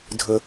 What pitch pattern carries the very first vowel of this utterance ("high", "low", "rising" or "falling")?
high